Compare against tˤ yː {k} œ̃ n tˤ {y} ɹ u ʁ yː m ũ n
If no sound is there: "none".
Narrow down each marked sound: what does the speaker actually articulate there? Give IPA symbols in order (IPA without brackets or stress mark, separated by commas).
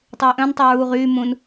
ʔ, y